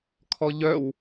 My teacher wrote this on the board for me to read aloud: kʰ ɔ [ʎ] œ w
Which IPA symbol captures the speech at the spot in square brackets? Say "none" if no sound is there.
ʎ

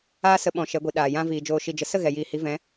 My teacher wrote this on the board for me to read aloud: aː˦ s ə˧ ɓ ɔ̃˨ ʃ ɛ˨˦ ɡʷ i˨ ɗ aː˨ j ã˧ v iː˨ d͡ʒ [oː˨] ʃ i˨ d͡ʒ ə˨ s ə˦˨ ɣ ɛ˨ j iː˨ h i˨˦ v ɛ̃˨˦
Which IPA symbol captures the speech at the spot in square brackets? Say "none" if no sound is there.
oː˨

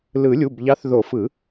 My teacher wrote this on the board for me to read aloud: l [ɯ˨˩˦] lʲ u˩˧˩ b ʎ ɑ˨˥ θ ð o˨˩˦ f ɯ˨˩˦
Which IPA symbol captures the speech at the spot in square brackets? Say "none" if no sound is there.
ɯ˨˩˦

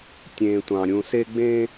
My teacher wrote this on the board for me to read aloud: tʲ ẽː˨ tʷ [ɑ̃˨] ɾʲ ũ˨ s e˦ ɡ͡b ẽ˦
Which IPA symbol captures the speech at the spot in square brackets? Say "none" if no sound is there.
ɑ̃˨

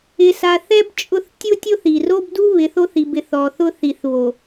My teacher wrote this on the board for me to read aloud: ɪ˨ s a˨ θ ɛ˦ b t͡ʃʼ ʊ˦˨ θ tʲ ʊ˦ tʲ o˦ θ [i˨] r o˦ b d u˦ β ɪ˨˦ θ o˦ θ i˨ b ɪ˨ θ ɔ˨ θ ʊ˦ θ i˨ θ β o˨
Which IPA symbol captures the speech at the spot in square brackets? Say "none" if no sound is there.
i˨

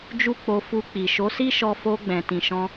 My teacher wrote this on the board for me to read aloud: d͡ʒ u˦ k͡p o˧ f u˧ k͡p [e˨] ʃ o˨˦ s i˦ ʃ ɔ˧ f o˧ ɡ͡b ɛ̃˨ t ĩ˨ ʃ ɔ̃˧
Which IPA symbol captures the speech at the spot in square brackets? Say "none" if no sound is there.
i˨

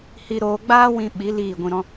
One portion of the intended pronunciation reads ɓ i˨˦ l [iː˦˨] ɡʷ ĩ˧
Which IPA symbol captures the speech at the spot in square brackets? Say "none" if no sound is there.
iː˦˨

